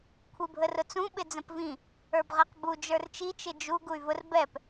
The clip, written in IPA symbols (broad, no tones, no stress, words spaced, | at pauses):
kʷʰibʱərʊt͡sũ ɓɪd͡zə̃pvĩ | ə˞bʁɛqbu d͡ʒə˞rt͡ʃi t͡ʃɪd͡ʒu ɡuy̯vʊr bɛp